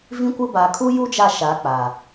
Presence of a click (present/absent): absent